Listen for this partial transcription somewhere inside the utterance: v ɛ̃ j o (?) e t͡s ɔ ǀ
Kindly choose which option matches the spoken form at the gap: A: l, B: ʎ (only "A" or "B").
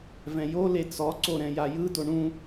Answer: A